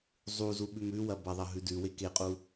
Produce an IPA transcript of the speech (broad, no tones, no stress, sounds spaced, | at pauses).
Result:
zˤ u z u ɓ ʉ m ʉ w ɐ b ɐ ðˤ ɐ ɦ ʉ d ʉ w e k e qʼ u